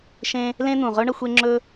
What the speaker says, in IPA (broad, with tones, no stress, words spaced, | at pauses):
ʃẽ˥ | lẽ˥n̪ũ˩ʁɵ˥ ɳɐ˥xʷe˥ŋ͡ǁɵ˥